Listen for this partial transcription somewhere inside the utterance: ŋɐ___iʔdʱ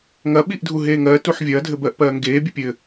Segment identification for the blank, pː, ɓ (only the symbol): ɓ